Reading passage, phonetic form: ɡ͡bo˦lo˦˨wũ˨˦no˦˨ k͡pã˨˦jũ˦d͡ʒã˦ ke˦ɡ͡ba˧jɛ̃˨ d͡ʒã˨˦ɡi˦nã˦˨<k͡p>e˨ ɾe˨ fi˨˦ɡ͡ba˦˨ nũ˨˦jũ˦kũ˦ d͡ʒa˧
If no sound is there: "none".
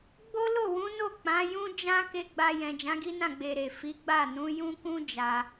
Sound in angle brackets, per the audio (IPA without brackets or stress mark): ɡ͡b